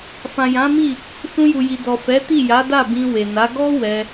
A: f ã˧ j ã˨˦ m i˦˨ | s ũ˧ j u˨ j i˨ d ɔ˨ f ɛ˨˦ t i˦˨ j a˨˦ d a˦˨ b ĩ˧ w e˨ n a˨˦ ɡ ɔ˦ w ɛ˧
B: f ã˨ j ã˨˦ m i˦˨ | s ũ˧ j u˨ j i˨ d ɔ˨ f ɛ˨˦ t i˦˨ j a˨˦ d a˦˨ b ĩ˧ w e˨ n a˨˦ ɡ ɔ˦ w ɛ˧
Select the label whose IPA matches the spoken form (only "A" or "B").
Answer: B